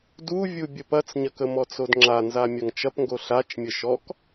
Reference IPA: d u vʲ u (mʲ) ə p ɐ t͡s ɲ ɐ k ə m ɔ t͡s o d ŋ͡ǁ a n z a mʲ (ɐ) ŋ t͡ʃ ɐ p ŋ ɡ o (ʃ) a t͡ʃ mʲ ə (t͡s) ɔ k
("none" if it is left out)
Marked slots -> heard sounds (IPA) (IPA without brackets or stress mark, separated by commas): bʲ, ɐ, ɬ, ʃ